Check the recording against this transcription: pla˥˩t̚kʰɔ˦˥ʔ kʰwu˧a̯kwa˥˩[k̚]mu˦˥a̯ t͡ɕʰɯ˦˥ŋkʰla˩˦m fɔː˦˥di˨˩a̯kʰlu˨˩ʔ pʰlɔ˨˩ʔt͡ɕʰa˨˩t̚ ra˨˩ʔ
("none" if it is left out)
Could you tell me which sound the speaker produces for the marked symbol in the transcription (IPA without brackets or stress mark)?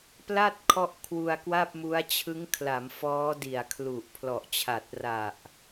p̚